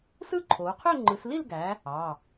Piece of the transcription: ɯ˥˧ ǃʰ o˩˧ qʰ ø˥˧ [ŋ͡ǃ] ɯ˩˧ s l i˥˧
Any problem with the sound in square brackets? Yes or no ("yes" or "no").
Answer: no